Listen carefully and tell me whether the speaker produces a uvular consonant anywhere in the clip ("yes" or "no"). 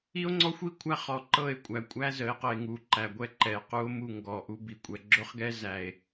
yes